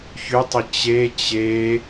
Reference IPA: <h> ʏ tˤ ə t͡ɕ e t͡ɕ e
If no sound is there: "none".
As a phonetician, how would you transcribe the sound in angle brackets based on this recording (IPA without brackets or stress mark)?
ç